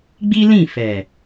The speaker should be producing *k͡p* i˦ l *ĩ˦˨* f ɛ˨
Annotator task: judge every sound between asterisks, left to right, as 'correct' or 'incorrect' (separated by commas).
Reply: incorrect, correct